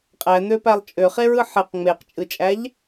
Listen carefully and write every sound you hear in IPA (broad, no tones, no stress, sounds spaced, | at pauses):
qʼ æ n̪ ø p æ lˠ t͡ʃʼ ø χ e ɹ ɯ ħ e q ŋ͡m e q t͡ʃʼ ɯ t͡ʃʼ æ ʎ